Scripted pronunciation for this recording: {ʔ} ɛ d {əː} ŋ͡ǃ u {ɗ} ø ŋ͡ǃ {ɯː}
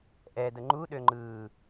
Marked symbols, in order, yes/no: yes, no, yes, yes

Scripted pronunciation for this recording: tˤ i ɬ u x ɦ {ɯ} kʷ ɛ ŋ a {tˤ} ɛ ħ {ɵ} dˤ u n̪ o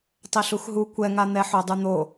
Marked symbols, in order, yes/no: no, no, no

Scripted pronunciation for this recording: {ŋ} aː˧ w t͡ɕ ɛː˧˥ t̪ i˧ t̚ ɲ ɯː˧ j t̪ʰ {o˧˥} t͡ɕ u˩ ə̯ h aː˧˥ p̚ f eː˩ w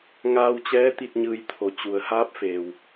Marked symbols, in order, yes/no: yes, no

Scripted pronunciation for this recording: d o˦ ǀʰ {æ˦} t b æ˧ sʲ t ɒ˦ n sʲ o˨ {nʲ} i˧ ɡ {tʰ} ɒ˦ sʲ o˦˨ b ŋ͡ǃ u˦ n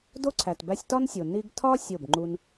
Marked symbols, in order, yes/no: no, no, yes

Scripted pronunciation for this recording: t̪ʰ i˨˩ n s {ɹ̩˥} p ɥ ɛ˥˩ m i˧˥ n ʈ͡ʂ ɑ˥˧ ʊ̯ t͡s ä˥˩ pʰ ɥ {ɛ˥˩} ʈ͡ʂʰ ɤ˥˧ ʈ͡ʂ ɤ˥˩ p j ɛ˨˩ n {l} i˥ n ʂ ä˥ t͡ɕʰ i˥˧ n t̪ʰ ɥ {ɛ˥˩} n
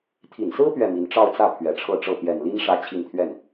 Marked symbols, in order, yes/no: yes, no, yes, yes

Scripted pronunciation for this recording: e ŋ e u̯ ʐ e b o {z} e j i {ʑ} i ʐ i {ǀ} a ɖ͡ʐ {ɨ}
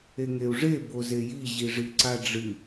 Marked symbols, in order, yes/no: yes, yes, yes, yes

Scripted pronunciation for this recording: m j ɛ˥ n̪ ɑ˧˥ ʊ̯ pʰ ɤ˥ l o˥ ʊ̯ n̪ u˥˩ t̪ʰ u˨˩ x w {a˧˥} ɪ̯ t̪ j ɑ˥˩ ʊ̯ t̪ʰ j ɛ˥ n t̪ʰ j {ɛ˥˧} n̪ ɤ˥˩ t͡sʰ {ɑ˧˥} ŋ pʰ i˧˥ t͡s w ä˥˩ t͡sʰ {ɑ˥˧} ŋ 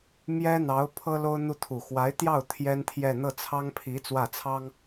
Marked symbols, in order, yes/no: yes, yes, no, no

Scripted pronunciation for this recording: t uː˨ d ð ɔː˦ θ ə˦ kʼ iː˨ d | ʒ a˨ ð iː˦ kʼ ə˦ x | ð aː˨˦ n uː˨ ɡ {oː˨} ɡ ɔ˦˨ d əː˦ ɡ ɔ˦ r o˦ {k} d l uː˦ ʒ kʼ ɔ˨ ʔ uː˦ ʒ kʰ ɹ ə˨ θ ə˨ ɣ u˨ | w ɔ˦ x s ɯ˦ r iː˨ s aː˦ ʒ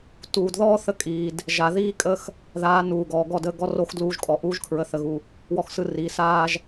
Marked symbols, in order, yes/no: no, no

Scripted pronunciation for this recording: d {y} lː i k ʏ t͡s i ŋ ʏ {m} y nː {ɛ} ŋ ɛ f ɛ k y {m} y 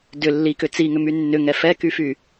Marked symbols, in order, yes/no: no, yes, no, no

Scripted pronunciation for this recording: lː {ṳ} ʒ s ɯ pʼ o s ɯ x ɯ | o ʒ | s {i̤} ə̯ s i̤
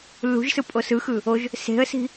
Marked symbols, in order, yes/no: yes, no

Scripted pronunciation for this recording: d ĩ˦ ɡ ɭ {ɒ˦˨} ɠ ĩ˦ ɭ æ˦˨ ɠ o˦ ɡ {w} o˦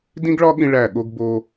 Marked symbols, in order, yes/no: no, no

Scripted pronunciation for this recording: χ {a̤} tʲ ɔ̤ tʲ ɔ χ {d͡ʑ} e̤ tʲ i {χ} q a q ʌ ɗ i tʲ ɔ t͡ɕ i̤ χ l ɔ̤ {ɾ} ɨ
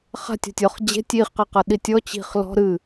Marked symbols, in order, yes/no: yes, yes, yes, yes

